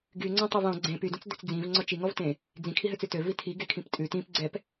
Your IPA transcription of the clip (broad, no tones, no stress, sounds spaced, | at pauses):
ɡ y ŋ͡ǀ ɔ̃ tˤ ø v ɔ̃ ɡ͡ǀ ẽ p y d ũ t͡s d ø t͡s d͡z ĩ v ŋ͡ǀ ɔ t͡ʃ i ŋ ɔ v t ẽ | d͡z ĩ kʰ i ɦ ø t͡s ʉ t ø v i tʰ i ɡ e kʰ ĩ p tʼ ʉ t ĩ p ɡ͡ǀ ɛ p